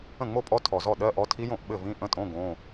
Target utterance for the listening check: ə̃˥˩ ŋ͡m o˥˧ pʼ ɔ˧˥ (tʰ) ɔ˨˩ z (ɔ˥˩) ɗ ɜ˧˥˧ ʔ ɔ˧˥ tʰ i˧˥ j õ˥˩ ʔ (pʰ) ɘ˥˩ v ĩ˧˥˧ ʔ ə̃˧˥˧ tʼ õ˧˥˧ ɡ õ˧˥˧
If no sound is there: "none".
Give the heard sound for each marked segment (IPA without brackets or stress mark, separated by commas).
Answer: tʰ, ɔ˥˩, ɓ